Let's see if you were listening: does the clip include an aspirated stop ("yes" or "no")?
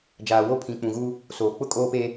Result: yes